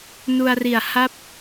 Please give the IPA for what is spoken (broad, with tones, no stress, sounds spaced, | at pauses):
n u˧ a̯ r i˨˩ a̯ h a˥˩ p̚